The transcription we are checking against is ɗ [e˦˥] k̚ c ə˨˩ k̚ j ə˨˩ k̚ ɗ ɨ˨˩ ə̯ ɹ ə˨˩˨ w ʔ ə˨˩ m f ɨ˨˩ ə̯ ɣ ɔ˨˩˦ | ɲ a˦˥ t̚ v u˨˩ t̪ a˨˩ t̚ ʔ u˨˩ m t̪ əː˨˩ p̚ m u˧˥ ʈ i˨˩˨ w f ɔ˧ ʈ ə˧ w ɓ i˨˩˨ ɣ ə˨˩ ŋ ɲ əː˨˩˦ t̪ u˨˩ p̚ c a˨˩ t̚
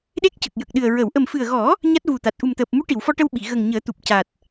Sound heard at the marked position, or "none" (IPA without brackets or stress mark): e˦˥